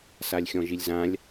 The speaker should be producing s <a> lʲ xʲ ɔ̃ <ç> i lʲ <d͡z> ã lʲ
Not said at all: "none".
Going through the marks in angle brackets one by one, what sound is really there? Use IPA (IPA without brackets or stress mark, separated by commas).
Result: a, ʒ, z